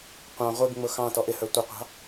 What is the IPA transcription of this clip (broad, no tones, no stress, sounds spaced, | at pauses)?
qʷ ɑ̃ ʁʷ i ɡ ŋ͡m ʊ x ɑ̃ t ɔ ʔ ɪ h ə˞ tʷ ɪ qʷ ɑ̤